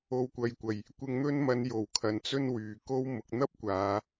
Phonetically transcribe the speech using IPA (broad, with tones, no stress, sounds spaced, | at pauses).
o˨ w kʷ ɐ˨ j kʷ ɐ˨˩ j | kʷ ɪ˧ ŋ n̪ ɵ˥ n m ɐ˧ n j o˨˩ w kʰ ɐ˨ n t͡s ɵ˥ n w yː˨ k o˥ w m ʊ˨ k̚ n̪ ɐ˥ p̚ kʷ aː˨˧